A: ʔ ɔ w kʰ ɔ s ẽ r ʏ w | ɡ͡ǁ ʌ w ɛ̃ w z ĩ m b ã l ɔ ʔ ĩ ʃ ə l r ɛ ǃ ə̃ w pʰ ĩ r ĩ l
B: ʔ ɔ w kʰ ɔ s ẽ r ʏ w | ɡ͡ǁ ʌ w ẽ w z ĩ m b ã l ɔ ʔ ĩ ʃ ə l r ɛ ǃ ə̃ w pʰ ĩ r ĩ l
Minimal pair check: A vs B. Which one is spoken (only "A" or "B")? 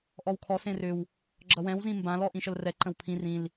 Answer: A